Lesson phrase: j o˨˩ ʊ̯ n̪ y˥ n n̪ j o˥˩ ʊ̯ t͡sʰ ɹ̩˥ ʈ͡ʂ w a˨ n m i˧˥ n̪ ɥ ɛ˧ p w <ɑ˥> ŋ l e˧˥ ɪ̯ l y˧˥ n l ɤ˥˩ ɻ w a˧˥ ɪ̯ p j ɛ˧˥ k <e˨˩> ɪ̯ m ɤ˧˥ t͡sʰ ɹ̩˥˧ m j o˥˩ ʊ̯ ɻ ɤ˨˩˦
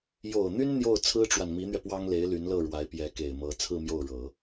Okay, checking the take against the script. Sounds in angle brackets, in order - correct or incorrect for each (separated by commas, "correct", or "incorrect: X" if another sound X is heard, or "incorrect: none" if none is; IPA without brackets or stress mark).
correct, correct